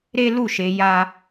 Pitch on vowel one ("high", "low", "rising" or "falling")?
high